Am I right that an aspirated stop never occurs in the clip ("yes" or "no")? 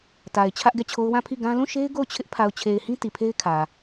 no